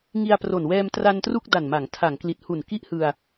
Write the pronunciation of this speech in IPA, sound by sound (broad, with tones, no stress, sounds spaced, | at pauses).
ŋ i˧ a̯ p r o˨˩ n w ɛː˧ m t r a˧ n t r u˥˩ k̚ d a˨˩ n m a˩˦ ŋ tʰ a˩˦ ŋ k l i˨˩ t̚ h u˨˩ n k i˥˩ ʔ h ɯ˧ a̯